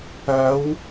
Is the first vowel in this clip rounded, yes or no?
no